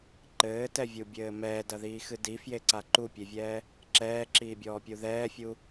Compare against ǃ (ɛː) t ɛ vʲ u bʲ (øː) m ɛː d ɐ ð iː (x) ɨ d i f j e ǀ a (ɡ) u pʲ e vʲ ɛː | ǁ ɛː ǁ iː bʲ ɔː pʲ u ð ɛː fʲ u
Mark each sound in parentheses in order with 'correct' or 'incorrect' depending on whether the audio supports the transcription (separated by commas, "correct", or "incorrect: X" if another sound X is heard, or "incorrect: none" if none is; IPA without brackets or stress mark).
incorrect: ɘː, incorrect: ɘː, correct, incorrect: ǃ